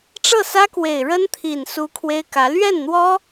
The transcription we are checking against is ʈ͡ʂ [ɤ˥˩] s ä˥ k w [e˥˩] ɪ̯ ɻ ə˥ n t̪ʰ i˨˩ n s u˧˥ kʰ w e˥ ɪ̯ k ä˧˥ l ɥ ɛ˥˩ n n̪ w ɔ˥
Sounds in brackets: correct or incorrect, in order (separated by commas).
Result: correct, incorrect